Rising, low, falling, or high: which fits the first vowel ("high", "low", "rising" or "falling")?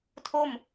falling